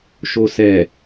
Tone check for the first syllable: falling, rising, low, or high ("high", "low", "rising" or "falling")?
low